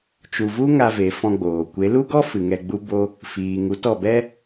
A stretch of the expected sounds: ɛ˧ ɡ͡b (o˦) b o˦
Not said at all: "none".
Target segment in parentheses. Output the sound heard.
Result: u˦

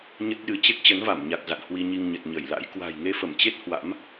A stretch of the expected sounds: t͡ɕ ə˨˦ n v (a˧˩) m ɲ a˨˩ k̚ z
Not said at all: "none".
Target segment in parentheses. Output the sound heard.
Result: a˧˩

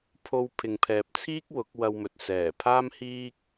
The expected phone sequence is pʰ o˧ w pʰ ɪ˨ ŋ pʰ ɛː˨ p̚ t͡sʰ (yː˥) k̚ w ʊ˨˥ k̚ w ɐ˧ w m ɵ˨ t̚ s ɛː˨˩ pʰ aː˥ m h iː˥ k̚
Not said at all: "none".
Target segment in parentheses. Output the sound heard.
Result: iː˥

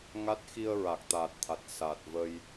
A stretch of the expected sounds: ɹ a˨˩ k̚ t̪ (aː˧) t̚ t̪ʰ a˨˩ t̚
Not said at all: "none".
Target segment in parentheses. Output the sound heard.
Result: aː˨˩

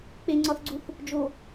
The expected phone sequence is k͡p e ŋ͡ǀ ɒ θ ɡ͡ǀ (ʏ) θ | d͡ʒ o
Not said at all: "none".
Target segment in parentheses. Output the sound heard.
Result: u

